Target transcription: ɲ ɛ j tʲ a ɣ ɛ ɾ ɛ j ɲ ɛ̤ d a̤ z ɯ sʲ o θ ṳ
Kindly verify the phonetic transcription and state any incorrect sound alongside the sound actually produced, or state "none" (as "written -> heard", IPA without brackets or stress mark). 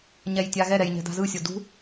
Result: θ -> d